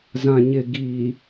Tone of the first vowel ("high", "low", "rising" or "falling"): low